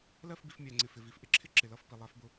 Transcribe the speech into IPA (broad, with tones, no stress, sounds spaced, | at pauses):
l ɜ˦˨ f b i˨ f mʲ æ˨ ŋ͡ǀ ɪ˨ f ɪ˨ v i˨ f ʔ ɪ˦ ǁʰ ɪ˦ ǁ ɪ˨ l ʌ˦˨ f p i˨ lˠ æ˨˦ f b ʊ˦